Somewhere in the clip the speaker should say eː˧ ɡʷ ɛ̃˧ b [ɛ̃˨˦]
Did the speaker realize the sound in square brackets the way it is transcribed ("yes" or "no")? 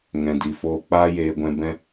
no